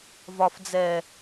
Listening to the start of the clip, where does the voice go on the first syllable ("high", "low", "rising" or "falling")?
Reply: low